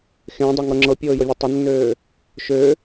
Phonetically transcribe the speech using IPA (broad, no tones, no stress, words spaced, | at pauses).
xẽdˤɤŋɤ ŋ͡ǁɤpʲɤːjɤvʲe tˤɪnːøː | ʃø